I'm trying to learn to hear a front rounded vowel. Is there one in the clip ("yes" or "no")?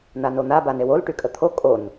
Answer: yes